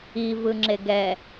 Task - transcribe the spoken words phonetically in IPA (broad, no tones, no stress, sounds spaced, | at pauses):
i v ɯ ŋ͡ǁ e ɡ ɛ